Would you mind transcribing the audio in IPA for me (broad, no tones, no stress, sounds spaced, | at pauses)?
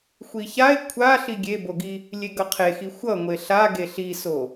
xʷ i ç a ɪ̯ kʷʰ a ɬ i ɡʲ e b o ɡ i | lʲ e ɡ ʌ qʰ e x i xʷ ʌ ŋʷ e ɬ a ɡ e ɬ i s o